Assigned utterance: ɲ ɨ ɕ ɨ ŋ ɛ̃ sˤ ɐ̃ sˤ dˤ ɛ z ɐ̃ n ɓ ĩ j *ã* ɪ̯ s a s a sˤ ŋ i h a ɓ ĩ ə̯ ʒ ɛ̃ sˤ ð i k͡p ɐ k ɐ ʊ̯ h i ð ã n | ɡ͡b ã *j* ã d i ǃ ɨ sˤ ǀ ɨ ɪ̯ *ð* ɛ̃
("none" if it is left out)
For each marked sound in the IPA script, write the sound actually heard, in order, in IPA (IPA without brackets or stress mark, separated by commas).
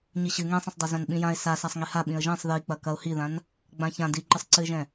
ã, ç, ʒ